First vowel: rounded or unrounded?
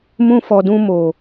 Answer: rounded